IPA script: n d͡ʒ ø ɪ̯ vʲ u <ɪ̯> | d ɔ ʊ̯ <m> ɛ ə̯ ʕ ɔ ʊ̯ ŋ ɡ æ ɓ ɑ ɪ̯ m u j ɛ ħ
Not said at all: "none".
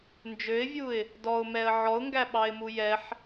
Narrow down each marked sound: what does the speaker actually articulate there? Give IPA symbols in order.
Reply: ɪ̯, m

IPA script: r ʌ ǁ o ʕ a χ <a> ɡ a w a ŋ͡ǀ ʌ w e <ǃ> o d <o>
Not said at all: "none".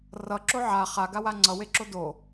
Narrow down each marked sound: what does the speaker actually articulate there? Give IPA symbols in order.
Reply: a, ǁ, o

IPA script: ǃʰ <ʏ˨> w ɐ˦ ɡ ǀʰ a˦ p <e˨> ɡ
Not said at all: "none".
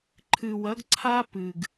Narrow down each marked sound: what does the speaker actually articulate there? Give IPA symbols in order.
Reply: ɨ˨, ɨ˨

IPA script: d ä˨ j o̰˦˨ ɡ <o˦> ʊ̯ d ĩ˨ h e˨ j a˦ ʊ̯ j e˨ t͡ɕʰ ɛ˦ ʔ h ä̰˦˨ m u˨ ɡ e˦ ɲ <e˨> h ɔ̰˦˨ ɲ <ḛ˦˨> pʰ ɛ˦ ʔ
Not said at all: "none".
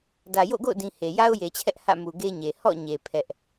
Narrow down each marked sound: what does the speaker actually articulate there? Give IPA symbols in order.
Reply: o̰˦˨, e˨, e˨

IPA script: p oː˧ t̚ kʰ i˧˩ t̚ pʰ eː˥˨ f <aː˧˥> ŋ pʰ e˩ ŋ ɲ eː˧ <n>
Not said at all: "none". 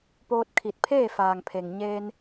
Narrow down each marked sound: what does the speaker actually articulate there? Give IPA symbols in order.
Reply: aː˩, n

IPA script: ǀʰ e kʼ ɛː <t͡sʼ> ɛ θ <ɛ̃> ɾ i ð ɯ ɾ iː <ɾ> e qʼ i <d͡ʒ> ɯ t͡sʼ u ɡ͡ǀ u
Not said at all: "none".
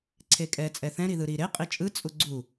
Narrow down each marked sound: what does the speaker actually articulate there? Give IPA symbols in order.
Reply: t͡sʼ, ɛ̃, ɾ, t͡ʃʼ

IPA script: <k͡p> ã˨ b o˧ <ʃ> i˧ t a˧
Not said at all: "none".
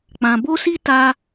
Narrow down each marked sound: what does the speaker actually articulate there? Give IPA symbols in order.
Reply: k͡p, s

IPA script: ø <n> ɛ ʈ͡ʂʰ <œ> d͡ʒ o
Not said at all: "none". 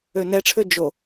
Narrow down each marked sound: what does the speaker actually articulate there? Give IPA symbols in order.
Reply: n, ø

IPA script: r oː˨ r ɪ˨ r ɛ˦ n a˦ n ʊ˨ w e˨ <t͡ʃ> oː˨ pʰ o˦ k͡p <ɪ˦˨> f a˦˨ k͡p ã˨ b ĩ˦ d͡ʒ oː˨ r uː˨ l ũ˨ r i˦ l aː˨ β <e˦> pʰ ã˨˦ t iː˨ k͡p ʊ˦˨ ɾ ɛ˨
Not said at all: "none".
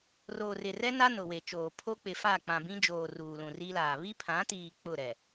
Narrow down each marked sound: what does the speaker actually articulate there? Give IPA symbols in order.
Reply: t͡ʃ, ɪ˨, i˦

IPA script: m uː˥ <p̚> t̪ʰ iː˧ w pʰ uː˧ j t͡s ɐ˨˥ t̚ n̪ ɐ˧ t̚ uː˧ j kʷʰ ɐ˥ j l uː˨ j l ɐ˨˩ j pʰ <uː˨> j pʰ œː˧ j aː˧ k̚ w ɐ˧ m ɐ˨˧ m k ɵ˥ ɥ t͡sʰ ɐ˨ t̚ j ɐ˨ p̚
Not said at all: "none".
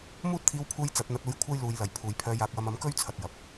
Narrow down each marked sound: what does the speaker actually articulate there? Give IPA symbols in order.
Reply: t̚, uː˨

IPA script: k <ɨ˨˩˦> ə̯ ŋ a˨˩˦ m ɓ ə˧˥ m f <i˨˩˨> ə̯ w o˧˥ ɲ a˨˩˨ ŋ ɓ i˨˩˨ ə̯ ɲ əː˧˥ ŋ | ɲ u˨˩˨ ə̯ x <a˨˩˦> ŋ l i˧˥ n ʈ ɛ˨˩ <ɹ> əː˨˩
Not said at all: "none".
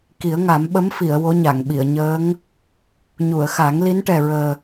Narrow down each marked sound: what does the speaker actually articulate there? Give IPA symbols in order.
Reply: i˨˩˦, i˨˩˨, a˨˩˦, ɹ

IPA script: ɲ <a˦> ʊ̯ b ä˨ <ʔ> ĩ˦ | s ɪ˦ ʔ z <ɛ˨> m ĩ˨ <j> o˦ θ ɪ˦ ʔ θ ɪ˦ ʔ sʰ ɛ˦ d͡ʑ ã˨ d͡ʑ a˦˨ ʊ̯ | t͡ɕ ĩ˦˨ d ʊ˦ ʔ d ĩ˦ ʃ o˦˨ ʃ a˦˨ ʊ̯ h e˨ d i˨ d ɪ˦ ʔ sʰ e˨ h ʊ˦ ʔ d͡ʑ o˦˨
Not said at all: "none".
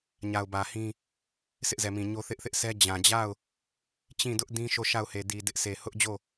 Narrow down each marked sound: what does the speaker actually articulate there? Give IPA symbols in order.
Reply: a˨, h, ɛ˨, ɲ

